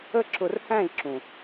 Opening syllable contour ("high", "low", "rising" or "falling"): high